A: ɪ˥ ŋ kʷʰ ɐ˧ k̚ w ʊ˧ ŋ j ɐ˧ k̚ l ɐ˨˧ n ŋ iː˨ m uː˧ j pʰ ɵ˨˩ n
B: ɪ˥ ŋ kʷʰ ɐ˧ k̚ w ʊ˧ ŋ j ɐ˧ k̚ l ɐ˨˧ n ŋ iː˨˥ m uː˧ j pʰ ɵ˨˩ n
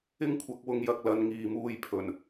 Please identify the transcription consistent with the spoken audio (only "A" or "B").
A